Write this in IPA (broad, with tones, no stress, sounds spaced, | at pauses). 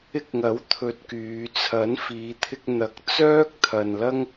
ɪ˧ k̚ ŋ ɐ˨˥ w t̪ʰ ɵ˧ t̚ k yː˨˧ t͡sʰ ɐ˨˥ n f iː˨˧ t̪ʰ ɪ˧ k̚ n̪ ɐ˨˥ k̚ t͡s œː˥ k̚ t̪ʰ ɐ˨ n l ɐ˥ ŋ